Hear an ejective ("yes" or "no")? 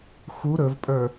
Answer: yes